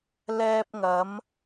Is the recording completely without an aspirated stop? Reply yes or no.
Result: yes